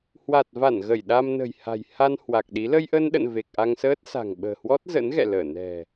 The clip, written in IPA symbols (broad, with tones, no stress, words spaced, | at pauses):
hwa˨˩t̚va˧˩n ɣə˧˩jɗa˧mnə̤˨˩jha̤˨˩j ha˧n hwa˨˩k̚ɗi˨˦ lə˧jʔə˧nɗə̰˧˨n ve˨˩k̚ʔa˧ŋsəː˦˥t̚ sa̤˨˩ŋɓə̤ː˨˩hwɔ˦˥t̚ zə̰˧˥nɣɛ̰˧˨ləː˧˩ nɛ̤˨˩